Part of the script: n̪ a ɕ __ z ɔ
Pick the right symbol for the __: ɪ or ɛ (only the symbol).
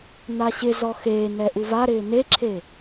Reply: ɪ